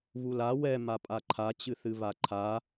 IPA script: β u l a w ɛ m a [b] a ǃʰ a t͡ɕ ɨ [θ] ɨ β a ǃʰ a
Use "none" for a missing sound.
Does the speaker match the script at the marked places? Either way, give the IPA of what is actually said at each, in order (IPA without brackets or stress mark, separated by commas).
pʼ, θ